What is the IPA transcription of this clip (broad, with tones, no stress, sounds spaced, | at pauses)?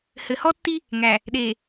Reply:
h ɘ˨ h ɔ˦ tː i˦ | ŋ æ˨ | ɗ e˨